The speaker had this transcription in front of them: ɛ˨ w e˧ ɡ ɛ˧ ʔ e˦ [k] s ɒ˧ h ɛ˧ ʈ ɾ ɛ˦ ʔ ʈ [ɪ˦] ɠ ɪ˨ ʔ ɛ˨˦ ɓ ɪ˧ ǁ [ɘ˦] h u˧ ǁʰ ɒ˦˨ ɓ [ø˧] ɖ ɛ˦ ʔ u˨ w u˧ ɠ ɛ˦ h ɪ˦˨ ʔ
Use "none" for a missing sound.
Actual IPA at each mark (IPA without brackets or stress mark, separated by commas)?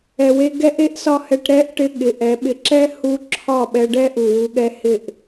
ʔ, ɪ˦, ɛ˦, ɛ˧